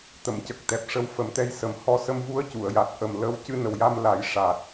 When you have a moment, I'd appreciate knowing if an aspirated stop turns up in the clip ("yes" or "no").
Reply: no